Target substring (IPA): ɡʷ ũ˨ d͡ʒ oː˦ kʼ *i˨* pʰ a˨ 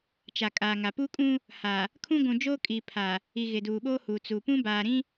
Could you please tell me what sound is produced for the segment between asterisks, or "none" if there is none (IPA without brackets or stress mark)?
i˨